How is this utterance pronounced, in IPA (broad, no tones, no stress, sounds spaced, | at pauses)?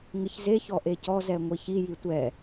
ŋ ɪ ç z e ç ɔ ʔ e c ɔ z ɛ ŋʷ i ç i j i tʷ ɛ